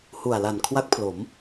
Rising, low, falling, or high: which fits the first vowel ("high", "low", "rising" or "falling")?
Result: low